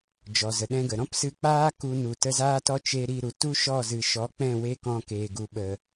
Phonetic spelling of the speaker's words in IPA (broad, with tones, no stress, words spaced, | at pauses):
d͡ʒɔ˨zə˨ɗɛ̃˧ɡə˨ ɾɔ̃˦psɨ˧k͡paː˦ ku˧nu˨ tə˧zaː˦tɔ˦t͡ʃe˧ ɾi˧ɾu˨ tu˦ʃɔ˦˨zɨ˨ʃɔ˨˦ k͡pɛ̃˦˨we˦kɔ̃˧ keː˨ɡu˨ɓə˨